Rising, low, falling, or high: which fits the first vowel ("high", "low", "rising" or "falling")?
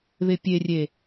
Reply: low